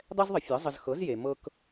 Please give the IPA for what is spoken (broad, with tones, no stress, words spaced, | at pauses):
dˤɛ˥zðˤə˩˥ fʲɤ˩˥ zˤə˧z xɤ˩˥zje˩ mɤ˧k